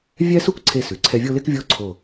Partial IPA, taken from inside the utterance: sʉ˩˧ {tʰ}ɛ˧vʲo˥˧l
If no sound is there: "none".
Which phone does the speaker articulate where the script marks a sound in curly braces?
ǀʰ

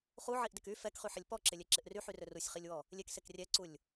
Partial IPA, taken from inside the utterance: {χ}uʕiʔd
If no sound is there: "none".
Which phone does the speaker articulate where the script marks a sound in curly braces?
χ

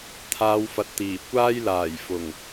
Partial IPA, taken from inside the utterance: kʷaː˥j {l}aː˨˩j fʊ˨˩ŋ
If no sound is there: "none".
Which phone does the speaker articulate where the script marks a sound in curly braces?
l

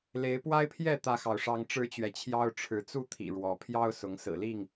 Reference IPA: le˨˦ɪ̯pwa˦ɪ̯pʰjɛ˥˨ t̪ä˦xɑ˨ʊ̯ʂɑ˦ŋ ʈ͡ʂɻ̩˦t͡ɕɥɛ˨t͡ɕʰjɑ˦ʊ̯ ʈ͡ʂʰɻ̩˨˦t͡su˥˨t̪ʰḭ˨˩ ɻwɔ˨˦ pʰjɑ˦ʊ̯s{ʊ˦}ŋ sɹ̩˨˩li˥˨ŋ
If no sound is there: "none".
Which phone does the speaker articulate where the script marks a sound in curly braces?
ʊ˨˦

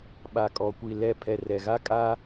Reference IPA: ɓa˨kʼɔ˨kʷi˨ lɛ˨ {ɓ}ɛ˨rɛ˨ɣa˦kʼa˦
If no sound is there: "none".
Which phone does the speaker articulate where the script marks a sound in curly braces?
pʰ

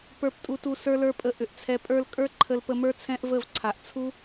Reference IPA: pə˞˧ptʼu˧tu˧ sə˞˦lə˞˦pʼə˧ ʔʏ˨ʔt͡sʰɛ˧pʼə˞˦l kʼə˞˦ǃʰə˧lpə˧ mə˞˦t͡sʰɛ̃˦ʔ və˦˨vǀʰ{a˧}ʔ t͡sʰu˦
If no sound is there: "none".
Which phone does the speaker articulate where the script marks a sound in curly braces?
a˨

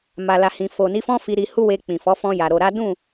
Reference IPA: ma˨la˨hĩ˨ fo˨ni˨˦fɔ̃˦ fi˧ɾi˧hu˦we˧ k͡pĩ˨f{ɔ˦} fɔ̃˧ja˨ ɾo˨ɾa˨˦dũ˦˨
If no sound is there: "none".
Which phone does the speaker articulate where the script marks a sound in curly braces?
ɔ˨˦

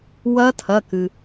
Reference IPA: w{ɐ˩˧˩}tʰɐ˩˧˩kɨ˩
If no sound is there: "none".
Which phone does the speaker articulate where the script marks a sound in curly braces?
ɐ˦˥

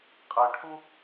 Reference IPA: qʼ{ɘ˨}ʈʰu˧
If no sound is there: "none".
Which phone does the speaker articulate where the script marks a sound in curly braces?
ɛ˨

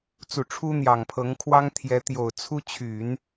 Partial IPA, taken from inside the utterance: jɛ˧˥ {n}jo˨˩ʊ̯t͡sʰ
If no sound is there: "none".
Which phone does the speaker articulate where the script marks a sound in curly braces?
t̪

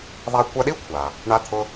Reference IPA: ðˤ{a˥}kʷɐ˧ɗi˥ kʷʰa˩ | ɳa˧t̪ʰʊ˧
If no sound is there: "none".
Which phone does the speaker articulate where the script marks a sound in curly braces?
a˧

